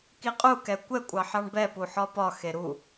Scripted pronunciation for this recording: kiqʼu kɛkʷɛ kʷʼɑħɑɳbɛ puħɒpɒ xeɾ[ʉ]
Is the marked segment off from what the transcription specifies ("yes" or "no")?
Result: yes